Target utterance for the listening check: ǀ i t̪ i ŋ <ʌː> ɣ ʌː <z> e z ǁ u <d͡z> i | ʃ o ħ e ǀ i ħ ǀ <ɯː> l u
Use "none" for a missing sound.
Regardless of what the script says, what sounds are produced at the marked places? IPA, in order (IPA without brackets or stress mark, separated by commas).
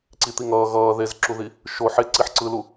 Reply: ʌː, ð, ð, ɯ